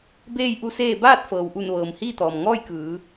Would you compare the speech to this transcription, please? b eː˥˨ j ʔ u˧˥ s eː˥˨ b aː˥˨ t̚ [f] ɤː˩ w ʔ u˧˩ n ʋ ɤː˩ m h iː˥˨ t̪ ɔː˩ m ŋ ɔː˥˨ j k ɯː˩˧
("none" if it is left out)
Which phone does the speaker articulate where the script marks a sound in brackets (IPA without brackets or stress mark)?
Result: f